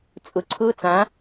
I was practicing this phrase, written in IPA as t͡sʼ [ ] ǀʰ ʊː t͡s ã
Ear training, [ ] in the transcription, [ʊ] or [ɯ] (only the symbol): ʊ